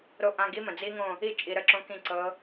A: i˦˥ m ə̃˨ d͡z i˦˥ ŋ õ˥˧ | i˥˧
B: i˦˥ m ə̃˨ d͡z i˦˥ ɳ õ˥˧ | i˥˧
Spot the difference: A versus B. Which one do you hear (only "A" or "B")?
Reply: A